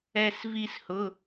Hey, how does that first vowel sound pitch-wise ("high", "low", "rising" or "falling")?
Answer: high